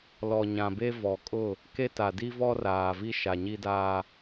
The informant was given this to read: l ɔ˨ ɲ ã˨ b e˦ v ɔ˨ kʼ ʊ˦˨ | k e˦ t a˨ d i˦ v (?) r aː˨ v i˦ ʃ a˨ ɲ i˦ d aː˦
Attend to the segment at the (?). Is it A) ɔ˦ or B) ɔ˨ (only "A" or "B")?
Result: A